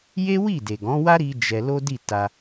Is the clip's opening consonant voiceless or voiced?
voiced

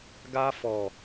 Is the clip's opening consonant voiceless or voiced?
voiced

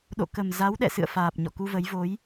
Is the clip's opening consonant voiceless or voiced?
voiced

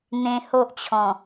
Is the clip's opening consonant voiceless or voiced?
voiced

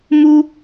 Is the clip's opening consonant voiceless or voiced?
voiced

